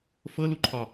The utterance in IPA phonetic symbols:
f ɤ l u ǃʰ ɒ

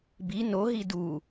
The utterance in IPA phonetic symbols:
b i n o ɦ i d u

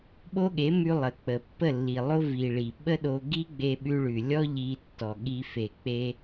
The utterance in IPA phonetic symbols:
ɓ o˦ ɠ e˨˦ m ʉ˧ lˠ ə˨ k͡p ə˨ pː ə˦˨ lː i˨ lˠ o˦ v i˨ ɭ i˨ ɓ ə˦ ɗ o˧ ɡ i˦ ɡ͡b e˧ ɓ ʉ˧ ɭ ʉ˨ lʲ ɔ˦ ʎ i˧ tː ɔ˨ ɠ i˧ f e˨ k͡p e˧

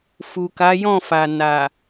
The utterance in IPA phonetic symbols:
f u˨ k a˨˦ j ɔ̃˦˨ f a˨ n a˨

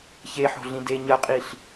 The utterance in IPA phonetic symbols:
ç e ħ o̤ ɮ ĩ d e ɲ ɐ qʼ i ɬ

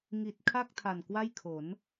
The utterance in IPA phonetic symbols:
ŋ i˨˩ t̚ kʰ a˥˩ k̚ tʰ a˨˩ n k w a˥˩ j kʰ o˩˦ n

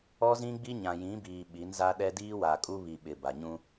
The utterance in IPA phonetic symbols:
ɔ˦ z ĩ˦ ɡ͡b i˦ ɲ ã˨ j ĩ˨˦ b iː˨ ɓ i˨˦ n z a˦ ɗ ɛ˦ d iː˦ w a˨ kʼ u˦ β i˨ ɓ ɪ˨ b a˨ ɲ ũ˦

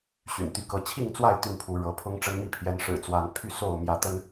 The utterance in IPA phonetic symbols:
ɕ y̰˨˩ n t̪ y˨˦ k ɤ˨˦ t͡ɕʰ i˥˨ ŋ t͡s w a˥˨ ɪ̯ t̪ y˥˨ n pʰ u˨˦ ɻ ɤ˨˦ pʰ ʊ˦ ŋ ʈ͡ʂ ə˦ n m i˦ pʰ j ɛ˨˦ n ʂ ɻ̩˨˩ t͡s w a˨˦ n pʰ y˥˨ s o˥˨ ʊ̯ m j ä˨˦ t̪ ə˦ n

